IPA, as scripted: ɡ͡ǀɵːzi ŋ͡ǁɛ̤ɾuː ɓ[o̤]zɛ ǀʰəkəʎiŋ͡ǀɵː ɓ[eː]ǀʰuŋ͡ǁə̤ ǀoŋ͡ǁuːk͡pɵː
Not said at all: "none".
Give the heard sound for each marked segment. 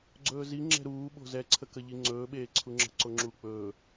o̤, eː

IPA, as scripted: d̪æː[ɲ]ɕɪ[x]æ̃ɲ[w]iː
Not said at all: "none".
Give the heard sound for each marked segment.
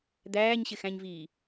ɲ, x, v

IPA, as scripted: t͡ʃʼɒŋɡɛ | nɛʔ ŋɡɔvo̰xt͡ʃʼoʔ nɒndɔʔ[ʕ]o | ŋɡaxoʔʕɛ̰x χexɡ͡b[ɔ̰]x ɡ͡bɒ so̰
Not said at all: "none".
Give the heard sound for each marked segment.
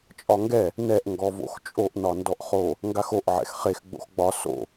χ, o̰

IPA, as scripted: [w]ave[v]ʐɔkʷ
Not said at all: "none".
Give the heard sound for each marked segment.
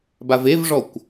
b, v

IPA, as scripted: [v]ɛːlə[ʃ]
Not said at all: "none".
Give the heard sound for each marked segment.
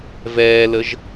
v, ʒ

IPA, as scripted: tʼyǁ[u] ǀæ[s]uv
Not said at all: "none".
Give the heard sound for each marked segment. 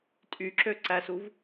ø, s

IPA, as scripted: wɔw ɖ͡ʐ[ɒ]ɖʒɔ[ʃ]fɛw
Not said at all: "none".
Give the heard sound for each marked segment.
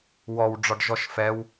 ɒ, ʃ

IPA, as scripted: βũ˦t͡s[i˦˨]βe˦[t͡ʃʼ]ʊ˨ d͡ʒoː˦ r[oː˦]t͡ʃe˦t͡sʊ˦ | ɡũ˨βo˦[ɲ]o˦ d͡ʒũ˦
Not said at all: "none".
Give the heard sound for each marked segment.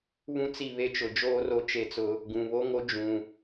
i˦˨, t͡ʃ, o˦, ŋ

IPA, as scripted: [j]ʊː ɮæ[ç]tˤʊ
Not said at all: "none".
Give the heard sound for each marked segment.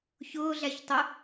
ç, ç

